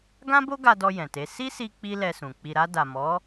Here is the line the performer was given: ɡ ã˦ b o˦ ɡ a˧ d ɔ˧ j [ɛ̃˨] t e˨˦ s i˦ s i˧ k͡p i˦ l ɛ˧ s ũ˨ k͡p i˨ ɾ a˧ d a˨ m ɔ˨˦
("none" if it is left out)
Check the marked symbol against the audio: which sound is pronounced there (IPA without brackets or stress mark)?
ɛ̃˨